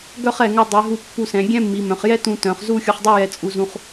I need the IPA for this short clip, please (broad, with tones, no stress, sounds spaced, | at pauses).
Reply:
ɡ œ˥˧ χ ɛ˧˩ ŋ ɵ˧ dˤ i˩˧ ɦ u˧˩ pː u˧˩ s ɛ̃˩˧ ɡʲ ɛ̃˥ mː i˩˧ m œ̃˩˧ χ j ɛ˥ t ũ˧ t œ̃˩˧ χ z u˥˧ xʲ u˧ χ dˤ u˥˧ j ɛ˧ t͡sʼ u˧ z ũ˧ χ